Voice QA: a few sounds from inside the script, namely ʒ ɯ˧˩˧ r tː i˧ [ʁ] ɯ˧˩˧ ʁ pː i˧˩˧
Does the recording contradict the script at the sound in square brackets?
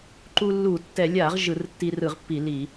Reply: yes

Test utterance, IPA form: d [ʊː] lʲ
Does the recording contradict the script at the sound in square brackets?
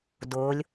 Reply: no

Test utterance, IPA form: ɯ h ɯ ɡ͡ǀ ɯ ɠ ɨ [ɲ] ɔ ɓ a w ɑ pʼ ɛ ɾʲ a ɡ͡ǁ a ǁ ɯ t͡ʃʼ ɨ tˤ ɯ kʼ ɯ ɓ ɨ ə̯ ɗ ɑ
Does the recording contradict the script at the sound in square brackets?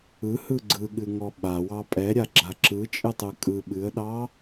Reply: yes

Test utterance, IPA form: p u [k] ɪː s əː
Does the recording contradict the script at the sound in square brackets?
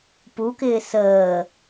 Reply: no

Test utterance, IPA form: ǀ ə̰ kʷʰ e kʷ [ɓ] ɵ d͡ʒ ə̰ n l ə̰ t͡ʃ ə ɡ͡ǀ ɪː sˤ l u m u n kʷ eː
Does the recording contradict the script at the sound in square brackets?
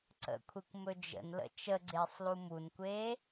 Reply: yes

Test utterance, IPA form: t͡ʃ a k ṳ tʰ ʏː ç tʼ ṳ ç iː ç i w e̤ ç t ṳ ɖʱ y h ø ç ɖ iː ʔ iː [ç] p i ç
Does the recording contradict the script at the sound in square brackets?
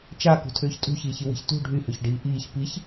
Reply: no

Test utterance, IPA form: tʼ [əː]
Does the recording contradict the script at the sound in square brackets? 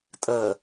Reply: no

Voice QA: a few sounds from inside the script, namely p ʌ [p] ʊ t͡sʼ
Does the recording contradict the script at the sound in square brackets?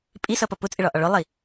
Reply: no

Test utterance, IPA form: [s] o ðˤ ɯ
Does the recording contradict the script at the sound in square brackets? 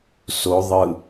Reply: no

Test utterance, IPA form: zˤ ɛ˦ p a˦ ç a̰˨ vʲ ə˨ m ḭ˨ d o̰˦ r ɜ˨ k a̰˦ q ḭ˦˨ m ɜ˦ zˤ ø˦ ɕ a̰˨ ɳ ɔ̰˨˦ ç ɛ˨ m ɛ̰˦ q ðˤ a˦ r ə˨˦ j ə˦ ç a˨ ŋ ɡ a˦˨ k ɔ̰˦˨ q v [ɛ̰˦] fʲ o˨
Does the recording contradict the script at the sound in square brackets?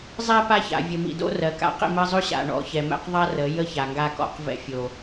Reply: no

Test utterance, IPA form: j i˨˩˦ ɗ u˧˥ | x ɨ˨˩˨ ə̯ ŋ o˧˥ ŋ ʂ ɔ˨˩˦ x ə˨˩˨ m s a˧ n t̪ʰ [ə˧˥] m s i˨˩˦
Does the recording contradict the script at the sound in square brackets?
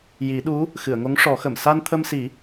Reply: yes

